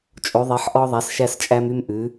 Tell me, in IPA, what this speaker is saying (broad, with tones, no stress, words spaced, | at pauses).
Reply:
t͡ʃʼo˩˧ðˤe˩˧ħ ʔɔ˧ðˤæ˩˧sʃæ˧st͡ʃʼæ˧m y˧mʔʉ˩˧